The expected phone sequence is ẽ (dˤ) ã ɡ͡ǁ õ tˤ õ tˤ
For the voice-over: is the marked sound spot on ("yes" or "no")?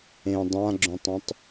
yes